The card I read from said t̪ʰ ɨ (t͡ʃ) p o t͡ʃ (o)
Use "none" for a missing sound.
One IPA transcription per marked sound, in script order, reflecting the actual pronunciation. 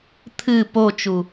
none, u

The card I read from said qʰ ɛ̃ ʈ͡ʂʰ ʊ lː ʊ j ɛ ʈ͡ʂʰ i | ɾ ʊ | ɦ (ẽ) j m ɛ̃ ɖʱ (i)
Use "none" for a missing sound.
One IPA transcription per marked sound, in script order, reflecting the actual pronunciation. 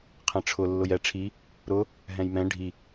ɛ̃, i

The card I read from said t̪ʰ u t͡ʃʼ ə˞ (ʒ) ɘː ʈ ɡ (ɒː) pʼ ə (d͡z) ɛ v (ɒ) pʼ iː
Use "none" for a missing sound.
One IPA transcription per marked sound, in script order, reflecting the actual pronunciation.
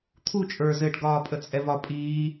z, ɒː, t͡sʼ, ɒ

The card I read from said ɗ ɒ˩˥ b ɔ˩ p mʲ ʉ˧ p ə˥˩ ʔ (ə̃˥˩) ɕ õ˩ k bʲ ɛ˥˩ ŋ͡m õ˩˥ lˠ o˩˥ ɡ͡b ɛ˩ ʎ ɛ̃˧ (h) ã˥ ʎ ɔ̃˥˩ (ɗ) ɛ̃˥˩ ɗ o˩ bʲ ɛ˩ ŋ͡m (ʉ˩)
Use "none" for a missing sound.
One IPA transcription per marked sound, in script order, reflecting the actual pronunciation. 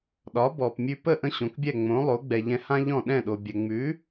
ə̃˥˩, h, ɗ, ʉ˩˥

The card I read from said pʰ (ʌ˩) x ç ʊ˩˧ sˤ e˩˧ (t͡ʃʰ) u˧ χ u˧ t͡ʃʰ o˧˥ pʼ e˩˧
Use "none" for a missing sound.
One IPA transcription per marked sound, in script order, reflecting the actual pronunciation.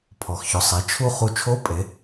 ɔ˩, t͡ʃʰ

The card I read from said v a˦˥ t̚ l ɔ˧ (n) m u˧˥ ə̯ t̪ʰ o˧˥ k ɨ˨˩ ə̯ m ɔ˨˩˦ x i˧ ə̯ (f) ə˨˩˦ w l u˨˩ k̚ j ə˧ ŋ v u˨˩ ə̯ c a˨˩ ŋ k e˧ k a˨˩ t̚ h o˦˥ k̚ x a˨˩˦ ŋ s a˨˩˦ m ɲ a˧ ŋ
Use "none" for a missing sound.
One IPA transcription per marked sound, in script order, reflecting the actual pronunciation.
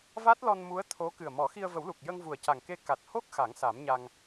n, v

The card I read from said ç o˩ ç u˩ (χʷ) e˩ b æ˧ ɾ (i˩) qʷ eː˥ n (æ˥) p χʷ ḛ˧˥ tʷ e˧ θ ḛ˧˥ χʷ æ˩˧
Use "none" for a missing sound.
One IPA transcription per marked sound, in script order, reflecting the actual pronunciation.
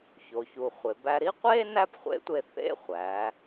χʷ, i˧˥, æ˥

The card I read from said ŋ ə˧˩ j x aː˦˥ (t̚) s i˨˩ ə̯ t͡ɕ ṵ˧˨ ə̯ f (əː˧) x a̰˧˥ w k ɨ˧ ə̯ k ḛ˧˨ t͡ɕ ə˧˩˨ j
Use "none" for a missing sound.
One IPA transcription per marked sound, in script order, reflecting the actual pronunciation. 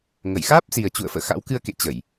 p̚, ə̰ː˧˨

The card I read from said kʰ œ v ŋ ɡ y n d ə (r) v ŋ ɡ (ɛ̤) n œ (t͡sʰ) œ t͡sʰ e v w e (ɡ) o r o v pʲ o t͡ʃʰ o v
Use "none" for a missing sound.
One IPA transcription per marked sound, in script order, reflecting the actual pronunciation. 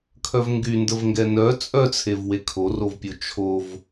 none, ɛ, t͡sʼ, kʰ

